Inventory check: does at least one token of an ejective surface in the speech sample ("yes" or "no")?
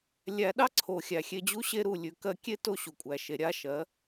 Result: yes